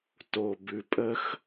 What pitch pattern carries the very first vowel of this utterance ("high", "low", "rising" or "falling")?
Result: low